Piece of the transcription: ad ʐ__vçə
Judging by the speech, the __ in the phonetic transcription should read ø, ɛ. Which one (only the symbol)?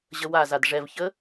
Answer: ɛ